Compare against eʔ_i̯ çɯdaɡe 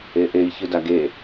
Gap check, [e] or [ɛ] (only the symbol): e